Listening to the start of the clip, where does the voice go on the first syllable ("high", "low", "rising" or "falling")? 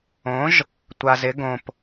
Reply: rising